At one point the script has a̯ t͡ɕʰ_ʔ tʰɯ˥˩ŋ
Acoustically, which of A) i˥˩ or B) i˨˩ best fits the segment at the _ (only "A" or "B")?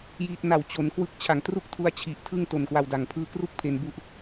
B